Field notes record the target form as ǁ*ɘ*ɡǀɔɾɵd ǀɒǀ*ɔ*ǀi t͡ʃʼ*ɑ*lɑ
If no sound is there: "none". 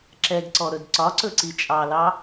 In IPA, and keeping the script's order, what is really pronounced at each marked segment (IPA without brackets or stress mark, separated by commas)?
ɛ, ɵ, ɑ